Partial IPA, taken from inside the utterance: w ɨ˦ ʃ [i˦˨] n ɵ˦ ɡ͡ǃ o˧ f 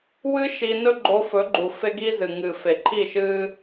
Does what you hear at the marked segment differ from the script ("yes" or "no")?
yes